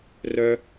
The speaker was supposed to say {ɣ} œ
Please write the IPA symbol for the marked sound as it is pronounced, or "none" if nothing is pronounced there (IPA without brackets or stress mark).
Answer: r